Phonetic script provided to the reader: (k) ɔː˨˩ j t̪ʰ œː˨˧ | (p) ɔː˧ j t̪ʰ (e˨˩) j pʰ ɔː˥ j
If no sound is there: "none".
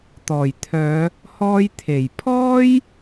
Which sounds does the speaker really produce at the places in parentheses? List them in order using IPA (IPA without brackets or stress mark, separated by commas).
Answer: t̪, h, e˨˩